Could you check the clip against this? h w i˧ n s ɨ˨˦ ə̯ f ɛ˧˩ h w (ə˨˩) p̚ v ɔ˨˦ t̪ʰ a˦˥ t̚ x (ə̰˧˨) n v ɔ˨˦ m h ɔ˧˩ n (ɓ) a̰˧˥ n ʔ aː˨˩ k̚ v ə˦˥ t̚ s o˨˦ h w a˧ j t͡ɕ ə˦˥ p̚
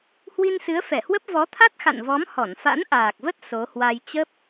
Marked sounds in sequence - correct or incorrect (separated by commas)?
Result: incorrect, incorrect, incorrect